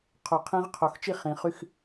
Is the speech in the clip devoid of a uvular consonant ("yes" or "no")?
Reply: no